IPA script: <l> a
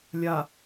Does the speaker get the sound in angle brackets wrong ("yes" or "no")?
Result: yes